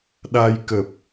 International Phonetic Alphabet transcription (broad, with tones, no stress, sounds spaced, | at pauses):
ɗ a˧ j k ə˨˩ p̚